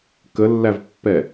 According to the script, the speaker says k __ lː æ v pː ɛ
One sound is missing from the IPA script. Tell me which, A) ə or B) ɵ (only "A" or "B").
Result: A